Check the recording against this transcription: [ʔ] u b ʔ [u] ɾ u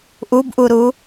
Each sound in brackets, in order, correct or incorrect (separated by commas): correct, correct